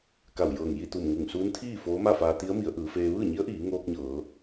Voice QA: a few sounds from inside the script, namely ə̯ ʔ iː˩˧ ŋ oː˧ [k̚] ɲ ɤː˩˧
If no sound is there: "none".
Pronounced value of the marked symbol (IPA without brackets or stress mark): k̚